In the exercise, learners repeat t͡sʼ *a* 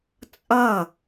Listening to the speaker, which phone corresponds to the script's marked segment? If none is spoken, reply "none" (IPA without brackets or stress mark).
ʌ